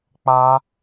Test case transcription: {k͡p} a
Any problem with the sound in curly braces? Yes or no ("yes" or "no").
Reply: no